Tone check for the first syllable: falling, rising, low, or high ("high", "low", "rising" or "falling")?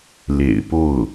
low